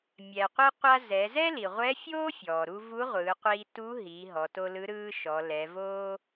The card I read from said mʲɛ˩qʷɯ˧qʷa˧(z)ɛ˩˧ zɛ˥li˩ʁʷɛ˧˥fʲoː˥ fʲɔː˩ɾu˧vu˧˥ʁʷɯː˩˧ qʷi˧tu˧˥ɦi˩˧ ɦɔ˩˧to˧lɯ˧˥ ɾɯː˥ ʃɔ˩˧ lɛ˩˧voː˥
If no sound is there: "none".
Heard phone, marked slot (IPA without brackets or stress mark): z